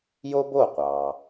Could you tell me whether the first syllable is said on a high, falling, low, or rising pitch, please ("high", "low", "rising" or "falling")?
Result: high